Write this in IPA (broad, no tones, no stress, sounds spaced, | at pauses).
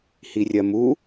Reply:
h i rʲ ɜ m u